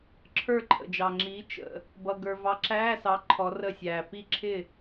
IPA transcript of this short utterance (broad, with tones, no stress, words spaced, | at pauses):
ǁʰə˞˥˨ǃʰə̰˨d͡ʒɑ˨ŋ͡ǁiː˨˥ t͡ʃə̰˨ | bʌ˨ ɡə˞˨vɑ˨˥ǁæː˧˥˧sɑ˨˥ ǃʰɔ˨˥rə˥˨sʲæː˨ pi˥˨ǁʰɪ˥˨